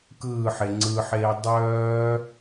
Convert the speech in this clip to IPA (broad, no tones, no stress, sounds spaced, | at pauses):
k ɯː ħ e ŋ͡ǀ ɯ ħ eː dˤ œː